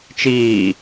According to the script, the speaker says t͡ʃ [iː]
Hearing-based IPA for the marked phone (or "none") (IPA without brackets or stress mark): iː